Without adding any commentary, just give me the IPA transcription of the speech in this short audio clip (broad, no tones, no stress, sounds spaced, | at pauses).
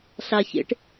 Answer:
ɬ a ç ḛ ʈ